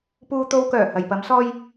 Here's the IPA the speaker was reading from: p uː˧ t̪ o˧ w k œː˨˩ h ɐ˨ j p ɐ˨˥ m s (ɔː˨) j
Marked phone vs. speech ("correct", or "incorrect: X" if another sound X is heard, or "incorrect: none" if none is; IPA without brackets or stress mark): incorrect: ɔː˥